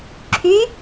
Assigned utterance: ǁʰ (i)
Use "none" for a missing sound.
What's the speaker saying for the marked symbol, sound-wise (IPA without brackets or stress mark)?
y